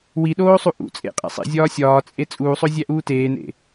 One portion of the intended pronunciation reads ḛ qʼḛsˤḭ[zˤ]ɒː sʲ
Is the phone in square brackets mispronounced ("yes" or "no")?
yes